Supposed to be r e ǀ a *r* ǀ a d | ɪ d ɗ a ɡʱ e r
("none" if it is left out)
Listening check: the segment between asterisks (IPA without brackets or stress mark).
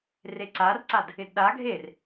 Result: r